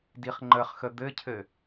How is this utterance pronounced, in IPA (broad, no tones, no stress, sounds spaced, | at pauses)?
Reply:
d i χ ŋ͡ǃ ə χ x ə d̪ ɘ cʰ ɘ